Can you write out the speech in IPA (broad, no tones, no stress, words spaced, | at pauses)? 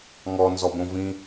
ŋɔnzɔbõvĩ